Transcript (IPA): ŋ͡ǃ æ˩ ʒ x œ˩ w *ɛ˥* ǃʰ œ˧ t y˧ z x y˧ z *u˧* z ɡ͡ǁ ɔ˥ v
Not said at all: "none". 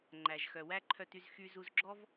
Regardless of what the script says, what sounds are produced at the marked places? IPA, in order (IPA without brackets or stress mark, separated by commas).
æ˥, u˧